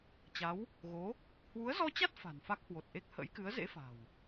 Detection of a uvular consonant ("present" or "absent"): absent